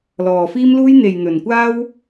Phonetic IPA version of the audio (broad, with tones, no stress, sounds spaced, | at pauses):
l ɔː˨ f iː˥ m l uː˥ j n̪ e˨ j n̪ ɵ˨ n kʷ aː˥ w